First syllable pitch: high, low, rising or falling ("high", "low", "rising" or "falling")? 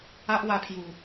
high